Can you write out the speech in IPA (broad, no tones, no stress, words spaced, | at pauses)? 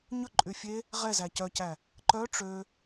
ɲɵ ǃʼyfʲe | ʁɛzæ cœcæ | ǃœ ʈ͡ʂø